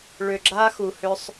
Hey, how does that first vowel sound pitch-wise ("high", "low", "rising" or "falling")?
low